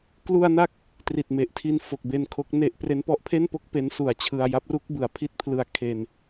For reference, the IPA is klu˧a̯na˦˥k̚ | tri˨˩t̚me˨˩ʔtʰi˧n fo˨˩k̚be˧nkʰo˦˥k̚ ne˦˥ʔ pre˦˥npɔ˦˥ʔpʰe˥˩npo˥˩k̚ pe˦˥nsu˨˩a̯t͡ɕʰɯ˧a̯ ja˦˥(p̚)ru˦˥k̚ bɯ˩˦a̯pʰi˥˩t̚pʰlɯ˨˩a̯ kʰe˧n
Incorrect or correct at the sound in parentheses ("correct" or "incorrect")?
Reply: correct